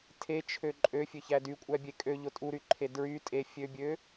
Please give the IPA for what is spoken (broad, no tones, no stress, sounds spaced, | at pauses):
tʰ e t͡ʃʰ ø ǃʼ ø fʲ ø ç æ d y kʷʼ æ bʲ e kʼ ø ʎ o tʼ u ɾ y ǃʰ e d ɹ y tʼ e fʲ ø bʲ ø